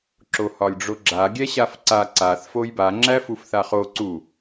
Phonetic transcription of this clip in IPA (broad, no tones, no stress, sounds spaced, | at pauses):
ǁ o h ɒ lʲ ɖ͡ʐ o ɡ͡ǁ a ɡʲ ɛ ɕ a f ǀ a ǀ a θ f o j b a ŋ͡ǁ æ f u f θ a χ o ǀ u